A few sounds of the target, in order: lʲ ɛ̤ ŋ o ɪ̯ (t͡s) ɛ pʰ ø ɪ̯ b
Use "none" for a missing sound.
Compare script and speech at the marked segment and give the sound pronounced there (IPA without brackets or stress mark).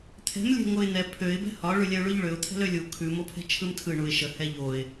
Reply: n̪